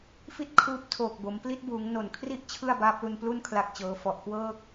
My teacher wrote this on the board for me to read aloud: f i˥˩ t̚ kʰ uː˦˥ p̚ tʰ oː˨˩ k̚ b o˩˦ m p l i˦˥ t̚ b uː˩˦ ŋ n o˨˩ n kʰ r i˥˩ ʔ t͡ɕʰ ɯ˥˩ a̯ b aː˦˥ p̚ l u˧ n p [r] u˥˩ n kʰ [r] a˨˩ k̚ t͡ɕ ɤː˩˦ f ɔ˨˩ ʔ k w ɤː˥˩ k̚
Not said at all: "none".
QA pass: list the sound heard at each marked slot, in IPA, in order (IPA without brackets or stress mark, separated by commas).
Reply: l, l